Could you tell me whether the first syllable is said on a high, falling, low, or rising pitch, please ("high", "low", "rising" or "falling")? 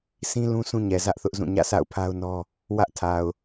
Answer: high